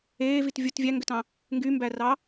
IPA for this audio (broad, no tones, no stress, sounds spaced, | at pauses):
eː v i t vʲ u t vʲ æ ŋ ɡ ø t ɑ̃ | ŋ ɡ y m b æ r ɑ